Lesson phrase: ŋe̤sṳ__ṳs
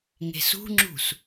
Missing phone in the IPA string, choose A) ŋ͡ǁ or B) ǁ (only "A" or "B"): A